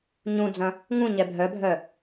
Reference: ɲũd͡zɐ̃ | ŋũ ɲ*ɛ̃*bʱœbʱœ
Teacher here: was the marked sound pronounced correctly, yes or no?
no